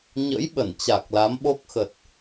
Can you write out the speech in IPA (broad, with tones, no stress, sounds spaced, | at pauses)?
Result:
ɲ ə̰˧˥ j ɓ ə˧˩ n t͡ɕ a˨˩ k̚ l a˨˦ m ɓ o˦˥ k̚ x ə˨˩ t̚